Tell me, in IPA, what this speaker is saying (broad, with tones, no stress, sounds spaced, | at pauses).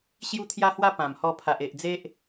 ɕ j u˦ t̪ʰ j a˦ h w a˦ p ã˨˩ m h ɔ˧ pʰ a˨ ʔ e˨ ʔ d͡z e˦ ʔ